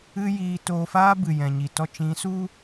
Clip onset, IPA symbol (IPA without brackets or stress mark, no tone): ɨ